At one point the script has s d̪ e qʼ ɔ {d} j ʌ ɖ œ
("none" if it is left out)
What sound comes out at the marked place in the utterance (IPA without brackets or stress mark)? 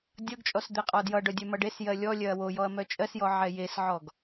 d